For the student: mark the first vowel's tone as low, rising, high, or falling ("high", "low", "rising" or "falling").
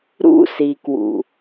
high